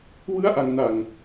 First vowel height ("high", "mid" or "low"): high